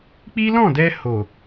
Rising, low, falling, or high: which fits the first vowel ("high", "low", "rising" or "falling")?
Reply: high